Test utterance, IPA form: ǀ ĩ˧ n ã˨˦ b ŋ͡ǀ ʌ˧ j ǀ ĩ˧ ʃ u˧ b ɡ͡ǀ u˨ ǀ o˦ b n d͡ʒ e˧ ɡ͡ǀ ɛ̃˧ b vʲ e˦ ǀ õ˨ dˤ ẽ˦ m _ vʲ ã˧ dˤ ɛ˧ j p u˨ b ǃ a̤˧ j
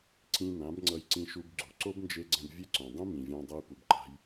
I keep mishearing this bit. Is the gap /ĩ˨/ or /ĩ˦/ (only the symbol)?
ĩ˨